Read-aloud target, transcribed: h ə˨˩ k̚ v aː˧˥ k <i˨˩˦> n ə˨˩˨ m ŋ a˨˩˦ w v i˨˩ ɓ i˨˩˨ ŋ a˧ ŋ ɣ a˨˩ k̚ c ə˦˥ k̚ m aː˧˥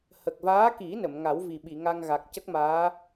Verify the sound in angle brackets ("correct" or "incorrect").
correct